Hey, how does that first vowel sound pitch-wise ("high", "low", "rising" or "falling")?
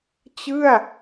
falling